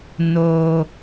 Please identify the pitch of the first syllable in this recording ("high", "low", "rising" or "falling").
low